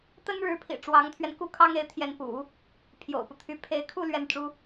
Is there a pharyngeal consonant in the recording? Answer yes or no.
no